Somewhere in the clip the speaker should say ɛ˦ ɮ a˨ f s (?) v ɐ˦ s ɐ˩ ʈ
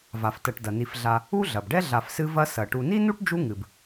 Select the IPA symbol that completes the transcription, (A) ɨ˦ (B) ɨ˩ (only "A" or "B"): A